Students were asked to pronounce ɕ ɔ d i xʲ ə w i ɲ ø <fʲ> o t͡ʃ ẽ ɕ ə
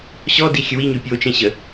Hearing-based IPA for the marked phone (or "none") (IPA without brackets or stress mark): pʲ